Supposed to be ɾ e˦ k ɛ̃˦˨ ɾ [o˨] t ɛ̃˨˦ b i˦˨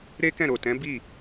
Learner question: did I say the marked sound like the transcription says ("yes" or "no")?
yes